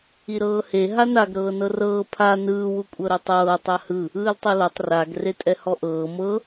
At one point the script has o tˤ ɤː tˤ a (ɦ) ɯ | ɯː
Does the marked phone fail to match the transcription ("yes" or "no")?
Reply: yes